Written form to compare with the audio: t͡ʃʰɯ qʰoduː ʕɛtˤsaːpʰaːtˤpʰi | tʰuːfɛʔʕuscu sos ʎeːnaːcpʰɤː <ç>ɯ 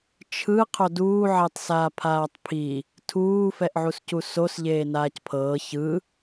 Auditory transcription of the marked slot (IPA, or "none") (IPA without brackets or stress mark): ç